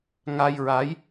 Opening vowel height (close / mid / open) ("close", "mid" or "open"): open